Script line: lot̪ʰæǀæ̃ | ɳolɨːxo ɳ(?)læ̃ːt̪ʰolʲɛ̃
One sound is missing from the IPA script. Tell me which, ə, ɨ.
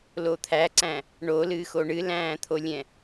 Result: ɨ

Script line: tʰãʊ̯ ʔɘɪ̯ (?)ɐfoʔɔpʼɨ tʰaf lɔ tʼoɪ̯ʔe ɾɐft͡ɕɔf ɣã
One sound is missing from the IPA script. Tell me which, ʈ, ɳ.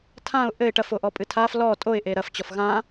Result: ʈ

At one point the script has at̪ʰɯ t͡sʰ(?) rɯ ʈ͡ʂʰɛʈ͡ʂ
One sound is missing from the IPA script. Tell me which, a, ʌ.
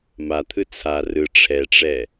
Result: a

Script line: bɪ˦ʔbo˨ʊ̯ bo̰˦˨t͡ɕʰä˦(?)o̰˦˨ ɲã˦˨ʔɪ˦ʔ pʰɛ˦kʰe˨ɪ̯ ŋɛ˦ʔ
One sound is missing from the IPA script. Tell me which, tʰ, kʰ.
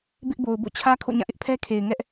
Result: kʰ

